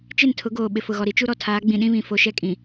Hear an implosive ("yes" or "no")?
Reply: yes